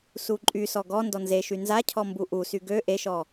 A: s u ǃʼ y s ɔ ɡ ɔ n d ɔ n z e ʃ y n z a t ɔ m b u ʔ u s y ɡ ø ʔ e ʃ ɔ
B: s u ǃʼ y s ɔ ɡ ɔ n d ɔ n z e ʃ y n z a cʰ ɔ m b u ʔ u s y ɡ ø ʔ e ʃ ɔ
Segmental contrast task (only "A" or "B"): B